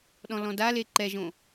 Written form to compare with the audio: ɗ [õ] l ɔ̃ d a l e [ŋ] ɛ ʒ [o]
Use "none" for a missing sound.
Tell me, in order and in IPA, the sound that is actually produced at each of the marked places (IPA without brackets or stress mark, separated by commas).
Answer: ɔ̃, ǃ, õ